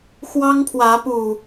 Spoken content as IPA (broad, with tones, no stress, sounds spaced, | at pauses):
x w ɑ˦ ŋ pʰ w ä˨˦ p u˨˩